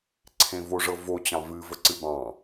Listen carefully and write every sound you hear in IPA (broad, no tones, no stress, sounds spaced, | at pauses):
ǀʰ ẽ v o ʐ ɤ v o t͡ɕ ɑ̃ v ɨ v ə ǀ ɨ b ɑ̃